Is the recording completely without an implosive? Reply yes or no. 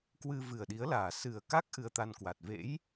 no